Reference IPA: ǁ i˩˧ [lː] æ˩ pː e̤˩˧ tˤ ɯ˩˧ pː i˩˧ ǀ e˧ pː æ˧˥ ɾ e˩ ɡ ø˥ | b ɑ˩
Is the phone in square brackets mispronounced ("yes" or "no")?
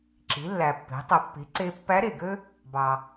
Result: no